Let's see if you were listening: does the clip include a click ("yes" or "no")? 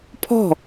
no